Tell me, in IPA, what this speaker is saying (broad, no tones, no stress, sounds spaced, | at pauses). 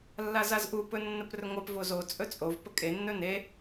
lː a z a z ʔ u p ɵ nː ə p r ɵ ŋʷ ɑ p v o z o t͡sʼ ɵ t͡sʼ o v p ə kʼ e nː ɵ n e